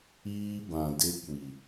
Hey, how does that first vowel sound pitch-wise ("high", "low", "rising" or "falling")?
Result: high